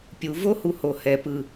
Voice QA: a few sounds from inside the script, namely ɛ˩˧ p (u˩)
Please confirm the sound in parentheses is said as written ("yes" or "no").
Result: no